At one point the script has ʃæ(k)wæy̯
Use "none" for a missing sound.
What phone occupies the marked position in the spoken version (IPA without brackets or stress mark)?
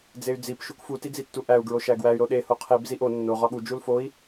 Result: ɡ